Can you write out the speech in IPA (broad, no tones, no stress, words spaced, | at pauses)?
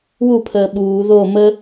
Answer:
wupʰəː ɓuː ðo mə